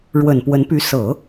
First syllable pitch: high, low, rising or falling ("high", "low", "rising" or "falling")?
low